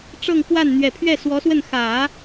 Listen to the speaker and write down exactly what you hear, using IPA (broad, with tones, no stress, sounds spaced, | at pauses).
ʈ͡ʂ ɤ˥˧ ŋ k w a˥˩ n n̪ ɥ ɛ˨˩ pʰ ɥ ɛ˥˩ s w ɔ˧˥ s w ə˥˩ n x ä˨˩˦